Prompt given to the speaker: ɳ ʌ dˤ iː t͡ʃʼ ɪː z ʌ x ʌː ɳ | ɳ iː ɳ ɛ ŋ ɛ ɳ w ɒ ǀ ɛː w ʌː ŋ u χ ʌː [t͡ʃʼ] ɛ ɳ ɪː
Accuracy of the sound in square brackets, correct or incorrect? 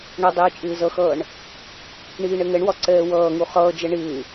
incorrect